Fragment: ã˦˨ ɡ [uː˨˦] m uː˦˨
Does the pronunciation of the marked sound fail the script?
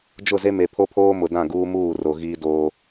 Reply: yes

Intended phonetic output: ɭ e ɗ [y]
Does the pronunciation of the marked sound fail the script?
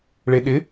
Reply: yes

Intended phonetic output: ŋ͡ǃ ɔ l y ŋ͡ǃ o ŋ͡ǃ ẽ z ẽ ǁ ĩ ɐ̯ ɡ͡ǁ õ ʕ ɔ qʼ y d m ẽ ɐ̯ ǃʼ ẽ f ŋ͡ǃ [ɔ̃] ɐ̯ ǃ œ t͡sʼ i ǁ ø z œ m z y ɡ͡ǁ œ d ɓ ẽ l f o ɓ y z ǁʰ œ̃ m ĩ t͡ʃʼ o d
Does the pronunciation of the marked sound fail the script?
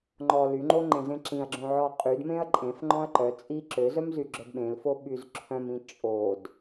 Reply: no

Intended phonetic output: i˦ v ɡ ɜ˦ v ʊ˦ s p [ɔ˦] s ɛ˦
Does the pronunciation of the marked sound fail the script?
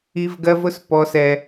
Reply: no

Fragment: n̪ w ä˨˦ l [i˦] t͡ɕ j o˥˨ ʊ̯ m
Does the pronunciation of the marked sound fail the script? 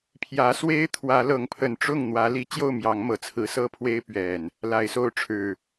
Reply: yes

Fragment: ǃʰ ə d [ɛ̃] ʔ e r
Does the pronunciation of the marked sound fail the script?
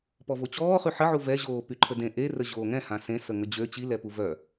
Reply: yes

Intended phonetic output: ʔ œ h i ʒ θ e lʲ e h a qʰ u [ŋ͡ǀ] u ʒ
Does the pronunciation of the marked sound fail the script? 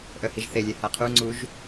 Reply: no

